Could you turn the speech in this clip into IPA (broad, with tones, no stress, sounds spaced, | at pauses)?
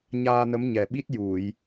ɲ aː˧ n ə˧˥ m ɲ ɛ˨˩ ɓ i˦˥ t̚ j u˨˩˨ j